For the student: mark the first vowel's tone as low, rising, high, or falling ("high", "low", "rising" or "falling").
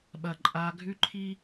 low